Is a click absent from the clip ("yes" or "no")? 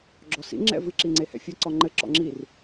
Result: no